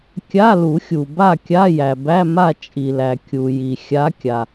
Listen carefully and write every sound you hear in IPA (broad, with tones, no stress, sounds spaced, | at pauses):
kʲ a˧˥˧ l u˨˩˦ xʲ u˩ b a˥˨ kʲ a˧˥˧ j æ˩ b æ˧˥˧ m a˥˨ t͡ʃʼ i˩ l æ˩ kʲ u˩ j i˩ xʲ a˨˦ kʲ a˩